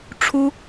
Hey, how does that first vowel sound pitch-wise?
high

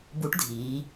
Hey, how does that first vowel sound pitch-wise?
rising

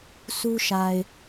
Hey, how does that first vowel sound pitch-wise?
high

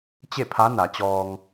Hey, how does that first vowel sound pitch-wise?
falling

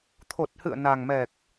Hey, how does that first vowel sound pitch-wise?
low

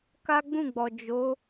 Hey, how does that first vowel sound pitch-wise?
high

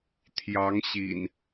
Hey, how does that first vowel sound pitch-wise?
rising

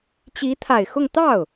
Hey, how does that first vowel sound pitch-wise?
rising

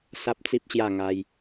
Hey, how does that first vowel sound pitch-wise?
high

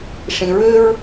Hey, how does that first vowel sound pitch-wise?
low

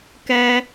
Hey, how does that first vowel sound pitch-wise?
high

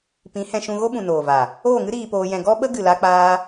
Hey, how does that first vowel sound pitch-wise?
rising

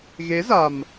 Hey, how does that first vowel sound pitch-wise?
rising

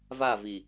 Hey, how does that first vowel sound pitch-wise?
falling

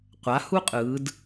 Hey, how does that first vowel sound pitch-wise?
rising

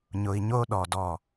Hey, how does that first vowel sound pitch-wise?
low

